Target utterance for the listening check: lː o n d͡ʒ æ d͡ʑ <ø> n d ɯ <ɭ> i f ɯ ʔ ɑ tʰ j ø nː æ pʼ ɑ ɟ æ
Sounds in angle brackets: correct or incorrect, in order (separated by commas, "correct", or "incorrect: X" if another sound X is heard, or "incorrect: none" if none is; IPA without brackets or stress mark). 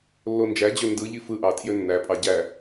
correct, incorrect: ʎ